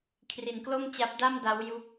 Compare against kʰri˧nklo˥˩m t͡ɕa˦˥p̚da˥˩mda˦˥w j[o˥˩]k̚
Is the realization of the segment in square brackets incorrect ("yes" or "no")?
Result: yes